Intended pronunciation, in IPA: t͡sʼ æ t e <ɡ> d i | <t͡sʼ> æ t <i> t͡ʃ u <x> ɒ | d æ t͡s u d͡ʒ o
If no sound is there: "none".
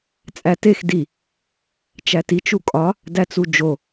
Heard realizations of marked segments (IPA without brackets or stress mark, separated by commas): x, t͡ʃ, i, kʼ